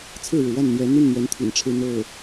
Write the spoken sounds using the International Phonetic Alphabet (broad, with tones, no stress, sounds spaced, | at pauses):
t͡sʰ ɹ̩˥˩ ɻ ɻ̩˩ w a˥˩ n n̪ j ɛ˧˥ n̪ i˥˩ n n̪ ɥ ɛ˧˥ n t̪ʰ ḭ˨˩ n ʈ͡ʂʰ ɻ̩˥˧ n̪ o˥˩ ʊ̯